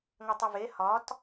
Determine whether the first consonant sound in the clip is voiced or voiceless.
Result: voiced